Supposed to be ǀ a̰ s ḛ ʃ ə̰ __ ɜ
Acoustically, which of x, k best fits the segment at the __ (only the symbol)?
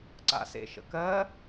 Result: k